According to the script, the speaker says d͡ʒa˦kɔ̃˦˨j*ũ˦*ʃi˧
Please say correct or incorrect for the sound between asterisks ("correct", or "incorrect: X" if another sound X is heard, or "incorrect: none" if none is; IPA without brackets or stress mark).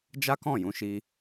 incorrect: ũ˨˦